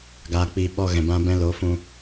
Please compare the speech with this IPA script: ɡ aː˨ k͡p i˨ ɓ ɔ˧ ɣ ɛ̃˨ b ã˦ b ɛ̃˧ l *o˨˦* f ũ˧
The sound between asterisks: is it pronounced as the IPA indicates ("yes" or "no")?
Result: yes